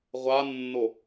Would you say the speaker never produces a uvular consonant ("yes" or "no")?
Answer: no